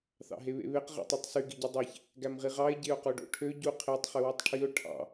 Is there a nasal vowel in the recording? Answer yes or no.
no